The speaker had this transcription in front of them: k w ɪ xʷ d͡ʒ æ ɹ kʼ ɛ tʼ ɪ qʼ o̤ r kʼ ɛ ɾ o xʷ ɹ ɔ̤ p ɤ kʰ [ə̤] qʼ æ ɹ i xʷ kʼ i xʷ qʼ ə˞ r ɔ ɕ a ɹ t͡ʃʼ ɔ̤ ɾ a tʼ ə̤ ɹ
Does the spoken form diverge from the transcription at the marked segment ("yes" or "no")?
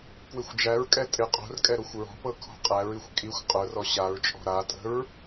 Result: yes